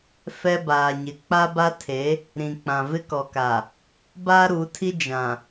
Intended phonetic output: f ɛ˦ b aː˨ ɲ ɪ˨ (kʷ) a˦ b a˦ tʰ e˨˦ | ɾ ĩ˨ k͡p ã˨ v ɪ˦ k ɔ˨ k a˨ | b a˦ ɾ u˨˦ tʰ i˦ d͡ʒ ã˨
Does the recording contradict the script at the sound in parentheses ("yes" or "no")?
yes